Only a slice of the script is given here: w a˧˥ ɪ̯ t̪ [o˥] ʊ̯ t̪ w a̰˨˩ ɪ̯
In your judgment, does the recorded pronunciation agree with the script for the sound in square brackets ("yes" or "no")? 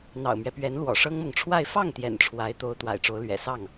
no